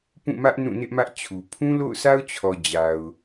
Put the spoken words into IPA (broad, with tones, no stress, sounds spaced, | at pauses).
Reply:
p ũ˦˨ m ä˦ ʔ n ũ˦˨ n ɪ˦ ʔ m ä˦ ʔ t͡ɕʰ u˨ pʰ ũ˦ l o̰˦˨ ʊ̯ sʰ a˦ ʊ̯ t͡ɕʰ ɔ˨ d͡ʑ a˨ ʊ̯